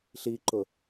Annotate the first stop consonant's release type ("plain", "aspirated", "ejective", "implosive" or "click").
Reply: click